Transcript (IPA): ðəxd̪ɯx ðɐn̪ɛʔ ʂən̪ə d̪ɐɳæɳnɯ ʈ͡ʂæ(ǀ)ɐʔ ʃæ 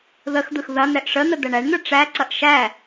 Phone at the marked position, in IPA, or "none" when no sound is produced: ǀ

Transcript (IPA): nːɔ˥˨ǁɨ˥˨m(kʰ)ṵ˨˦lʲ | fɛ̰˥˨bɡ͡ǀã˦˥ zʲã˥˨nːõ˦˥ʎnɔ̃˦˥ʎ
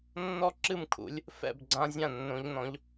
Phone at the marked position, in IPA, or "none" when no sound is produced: kʰ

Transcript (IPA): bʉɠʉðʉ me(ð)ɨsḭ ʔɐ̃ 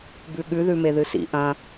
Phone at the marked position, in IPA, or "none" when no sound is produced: ð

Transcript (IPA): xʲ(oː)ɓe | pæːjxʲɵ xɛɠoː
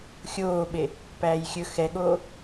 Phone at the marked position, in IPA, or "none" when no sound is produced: oː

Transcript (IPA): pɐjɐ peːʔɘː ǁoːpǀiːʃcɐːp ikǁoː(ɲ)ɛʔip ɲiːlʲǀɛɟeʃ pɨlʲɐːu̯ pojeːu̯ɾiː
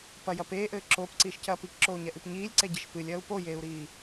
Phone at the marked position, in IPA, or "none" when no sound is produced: ɲ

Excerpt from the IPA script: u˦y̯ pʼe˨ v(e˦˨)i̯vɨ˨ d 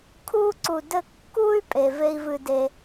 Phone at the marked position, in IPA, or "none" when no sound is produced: e˦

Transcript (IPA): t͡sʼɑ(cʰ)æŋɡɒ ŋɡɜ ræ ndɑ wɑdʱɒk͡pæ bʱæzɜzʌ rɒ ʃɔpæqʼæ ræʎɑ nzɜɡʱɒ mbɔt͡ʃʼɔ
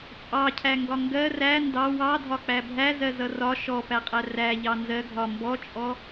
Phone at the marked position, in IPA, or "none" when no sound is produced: cʰ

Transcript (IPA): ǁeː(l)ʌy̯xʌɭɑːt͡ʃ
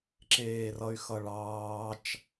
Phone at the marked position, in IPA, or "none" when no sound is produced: r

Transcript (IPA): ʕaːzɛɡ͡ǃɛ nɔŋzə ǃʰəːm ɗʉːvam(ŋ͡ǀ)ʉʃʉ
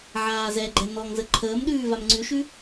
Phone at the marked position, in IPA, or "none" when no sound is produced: ŋ͡ǀ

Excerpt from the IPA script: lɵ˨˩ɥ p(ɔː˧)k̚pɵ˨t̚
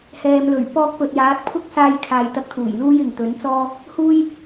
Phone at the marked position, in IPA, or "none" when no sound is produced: ɔː˧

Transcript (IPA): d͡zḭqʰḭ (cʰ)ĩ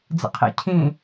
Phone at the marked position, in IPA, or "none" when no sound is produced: cʰ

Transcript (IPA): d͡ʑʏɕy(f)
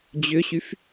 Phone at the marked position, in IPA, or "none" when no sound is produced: f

